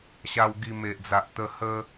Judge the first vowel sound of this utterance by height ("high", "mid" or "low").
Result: low